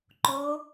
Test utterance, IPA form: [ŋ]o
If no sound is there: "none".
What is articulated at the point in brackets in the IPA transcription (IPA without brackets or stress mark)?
ǃ